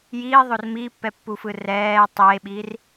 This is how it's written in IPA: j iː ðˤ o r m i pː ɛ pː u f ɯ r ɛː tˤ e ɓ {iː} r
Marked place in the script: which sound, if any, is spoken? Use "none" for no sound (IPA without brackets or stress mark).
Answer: iː